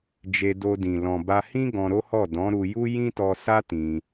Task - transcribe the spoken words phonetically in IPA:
d͡ʒe˧ do˧ dĩ˨ lɔ̃˨ ba˧hĩ˦ ɡɔ̃˧ɾo˦hɔ˦˨ dɔ̃˨˦ ɾu˧ju˦ jĩ˦tɔ˧sa˦ tĩ˧

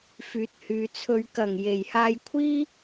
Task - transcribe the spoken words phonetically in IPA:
fyː˨˥t̚hyː˨˧t͡sʰɵ˧ɥ kɐ˨˩ŋje˨˩jhaː˧j kʷʰiː˥

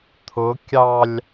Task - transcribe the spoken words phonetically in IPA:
t̪ʰʊ kʲɑlʲ

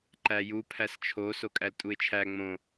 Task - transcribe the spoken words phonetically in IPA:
ǃæju pʰæst͡ʃʰo sokʼæltʼuɪ̯t͡ʃʰæ ŋ͡mõ

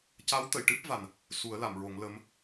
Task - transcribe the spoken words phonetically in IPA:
ca˧˥wt̪ə˨˩˨jʈɨ˦˥p̚ va˨˩n | su˨˩˦ə̯la˨˩˨mɹo˨˩˦ŋ lə˧˥m

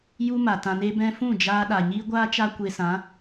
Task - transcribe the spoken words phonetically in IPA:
ju˦ma˨tã˧ ne˧bɛ̃˧ fũ˦˨d͡ʒaː˧ɗa˨ ɲiː˦ɡʷaː˦ t͡ʃa˦kʷe˧sã˨˦

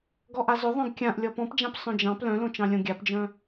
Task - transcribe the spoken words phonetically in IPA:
ɡɔʔazɵ ðˤœ̃ɡkʲãʔ lʲɔpɔ̃pd͡ʒãp sˤœ̃d͡ʒɑ̃p lœ̃lõt͡ʃɑ̃lʲõ ɡʲapd͡ʒœ̃

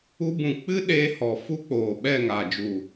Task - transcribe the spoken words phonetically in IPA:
u˧ bũ˨k͡pɨ˦ɗeː˧ hɔ˨ fu˦k͡poː˨ɓɛ˦˨ ŋa˨d͡ʒu˨

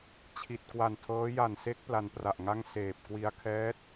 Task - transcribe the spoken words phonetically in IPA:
t͡ɕʰi˨˩t̚ kwa˨˩ntʰɤː˦˥ ja˨˩nse˦˥k̚ pla˧npra˨˩ʔŋa˥˩ŋ seː˨˩p̚ kwi˧a̯kʰɛː˦˥t̚

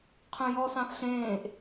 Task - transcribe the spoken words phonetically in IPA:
qʰœ̃jɔsɑ̃θ ɬẽːʔ

